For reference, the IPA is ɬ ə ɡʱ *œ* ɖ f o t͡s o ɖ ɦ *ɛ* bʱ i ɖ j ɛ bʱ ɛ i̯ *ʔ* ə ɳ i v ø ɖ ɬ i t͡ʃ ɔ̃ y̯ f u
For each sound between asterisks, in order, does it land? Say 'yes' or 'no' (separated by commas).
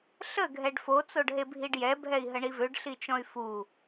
no, no, no